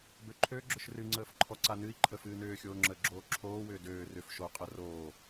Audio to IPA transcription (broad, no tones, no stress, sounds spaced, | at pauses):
b ø ǃʰ ø ɡ͡ǁ ʏ ʃ r ɨ ŋ͡ǀ əː f ǃʰ ɔ ǀ a n ɨ i̯ ǃʰ ə f ɨː n ʏː xʲ oː ŋ͡ǁ əː ɡ͡ǁ oː ǁʰ oː w ʏː d øː r ʏ f ʃ o qʼ ə r oː